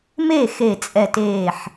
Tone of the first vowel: falling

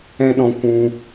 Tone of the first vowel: high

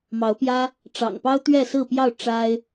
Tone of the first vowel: rising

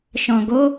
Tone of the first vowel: low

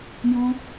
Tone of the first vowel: high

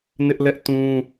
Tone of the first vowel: high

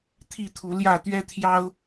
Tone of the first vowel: falling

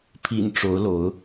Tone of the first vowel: low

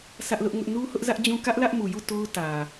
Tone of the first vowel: high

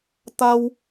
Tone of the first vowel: high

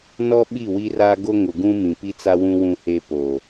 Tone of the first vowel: high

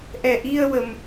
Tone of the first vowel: low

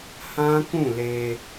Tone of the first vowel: high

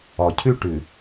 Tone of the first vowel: low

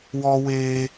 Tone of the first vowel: high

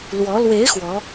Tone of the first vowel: rising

